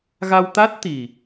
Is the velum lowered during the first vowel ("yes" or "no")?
no